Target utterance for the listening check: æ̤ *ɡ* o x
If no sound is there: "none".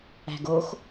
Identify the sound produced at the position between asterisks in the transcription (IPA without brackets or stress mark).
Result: ɡ